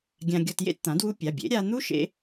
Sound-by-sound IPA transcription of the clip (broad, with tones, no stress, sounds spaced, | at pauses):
ɡʲ ã˧ ɡʲ ɔ˧ t j ḛ˥˨ t t̪ ã˩˥ d w u˦˥ pʲ a˩˧˩ bʲ ḛ˩˥ ɾʲ a˧ n̪ u˦˥ ʃ ḛ˦˥